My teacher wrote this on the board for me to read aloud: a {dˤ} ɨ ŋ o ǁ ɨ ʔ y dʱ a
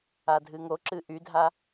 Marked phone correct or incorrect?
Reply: incorrect